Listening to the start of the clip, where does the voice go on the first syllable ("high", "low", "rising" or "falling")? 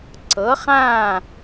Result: rising